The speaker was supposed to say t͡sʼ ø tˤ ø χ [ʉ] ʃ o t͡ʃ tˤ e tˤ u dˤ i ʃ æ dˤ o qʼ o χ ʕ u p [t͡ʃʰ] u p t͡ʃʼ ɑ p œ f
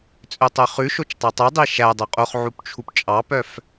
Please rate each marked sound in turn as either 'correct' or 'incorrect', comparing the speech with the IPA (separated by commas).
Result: correct, correct